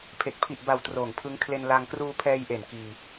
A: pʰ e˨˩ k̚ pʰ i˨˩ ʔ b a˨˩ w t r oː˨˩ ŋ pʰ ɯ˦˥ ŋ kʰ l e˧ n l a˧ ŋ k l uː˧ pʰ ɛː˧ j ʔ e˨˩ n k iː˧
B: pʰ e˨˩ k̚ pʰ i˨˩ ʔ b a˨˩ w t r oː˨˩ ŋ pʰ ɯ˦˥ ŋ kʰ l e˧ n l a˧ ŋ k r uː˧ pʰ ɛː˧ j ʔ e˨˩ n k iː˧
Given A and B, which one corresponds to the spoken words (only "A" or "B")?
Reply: B